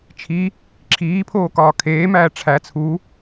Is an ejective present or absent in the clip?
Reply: absent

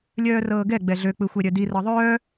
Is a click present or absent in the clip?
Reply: absent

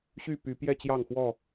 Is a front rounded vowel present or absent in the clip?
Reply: present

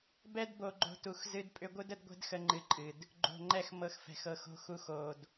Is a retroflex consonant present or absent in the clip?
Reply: absent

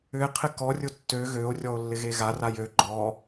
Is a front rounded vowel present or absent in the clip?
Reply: present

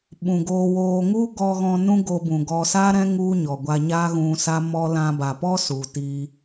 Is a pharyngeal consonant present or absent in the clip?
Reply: absent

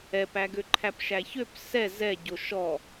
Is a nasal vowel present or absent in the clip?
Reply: absent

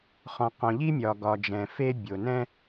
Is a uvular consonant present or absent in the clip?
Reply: present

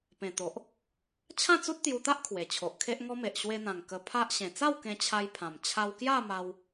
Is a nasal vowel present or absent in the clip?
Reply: present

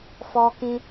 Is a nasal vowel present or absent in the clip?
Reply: present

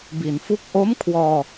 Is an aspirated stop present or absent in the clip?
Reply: present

